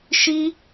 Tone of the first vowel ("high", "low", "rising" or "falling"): high